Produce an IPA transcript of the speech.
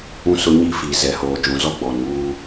ũ˦ s ʊ˦ ɲ i˦ f i˨ z ɛ˨ h oː˨ d͡ʒ ũ˨ z ɔ˦ ɡ͡b ɔ˨ n uː˦

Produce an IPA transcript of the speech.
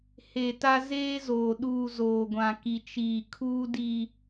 h e˨ t a˦ z eː˦ z oː˨ ɗ uː˦˨ z oː˨ ɡʷ ã˨ k i˨ t͡ʃ iː˨ kʰ uː˦ d i˨

